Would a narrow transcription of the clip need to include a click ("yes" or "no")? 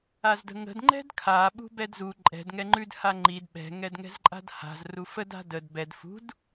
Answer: yes